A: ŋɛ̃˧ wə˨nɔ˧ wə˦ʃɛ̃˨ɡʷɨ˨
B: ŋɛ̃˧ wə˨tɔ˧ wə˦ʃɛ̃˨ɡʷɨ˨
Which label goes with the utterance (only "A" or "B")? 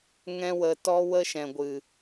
B